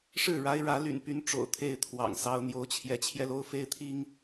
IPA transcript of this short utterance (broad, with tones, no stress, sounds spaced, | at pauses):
ʂ ɻ̩˥˨ ɻ a˦ ɪ̯ ɻ ä˨˦ l y̰˨˩ n p y˨˦ n ʈ͡ʂ o̰˨˩ ʊ̯ t̪ʰ e˥˨ ɪ̯ t̪ʰ w ɑ̰˨˩ ŋ s ɑ˦ ʊ̯ n̪ j o˨˦ ʊ̯ t͡ɕʰ j ɛ˨˦ t͡ɕʰ j ɛ˧ l o˦ ʊ̯ f e˦ ɪ̯ t̪ʰ i˦ ŋ